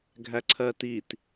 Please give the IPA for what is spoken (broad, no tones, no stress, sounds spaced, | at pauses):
ɡʱ æ ǀʰ ɜ t i t